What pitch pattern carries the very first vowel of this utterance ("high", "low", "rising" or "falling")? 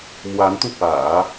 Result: rising